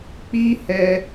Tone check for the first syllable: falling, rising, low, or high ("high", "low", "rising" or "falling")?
high